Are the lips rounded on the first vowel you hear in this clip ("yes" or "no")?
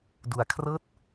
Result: yes